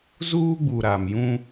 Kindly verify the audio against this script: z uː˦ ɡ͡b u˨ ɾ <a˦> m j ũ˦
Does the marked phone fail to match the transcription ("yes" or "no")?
yes